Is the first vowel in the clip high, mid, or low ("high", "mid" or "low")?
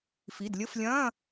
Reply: high